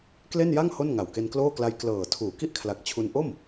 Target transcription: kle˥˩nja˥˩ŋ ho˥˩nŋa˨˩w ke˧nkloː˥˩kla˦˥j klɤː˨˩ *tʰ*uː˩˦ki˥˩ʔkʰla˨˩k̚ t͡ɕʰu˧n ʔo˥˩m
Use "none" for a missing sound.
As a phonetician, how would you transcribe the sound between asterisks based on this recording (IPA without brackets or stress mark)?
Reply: tʰ